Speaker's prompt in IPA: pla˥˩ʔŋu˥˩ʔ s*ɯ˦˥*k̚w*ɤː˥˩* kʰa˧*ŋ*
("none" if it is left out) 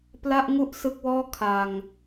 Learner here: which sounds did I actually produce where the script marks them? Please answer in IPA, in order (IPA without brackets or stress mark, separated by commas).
ɯ˦˥, ɔː˥˩, ŋ